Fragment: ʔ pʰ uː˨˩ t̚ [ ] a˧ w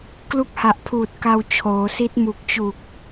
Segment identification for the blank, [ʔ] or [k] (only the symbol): k